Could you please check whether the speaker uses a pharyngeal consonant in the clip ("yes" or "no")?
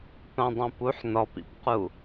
yes